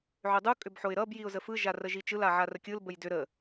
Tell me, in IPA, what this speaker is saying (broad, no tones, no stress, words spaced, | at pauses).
ʕʏdˤu kʼʏbħoɪ̯ɾʌb jiʊ̯zəfɯ ʒarəʒit͡ʃɯl aʕarəkʲɯl bəjdʏ ɾə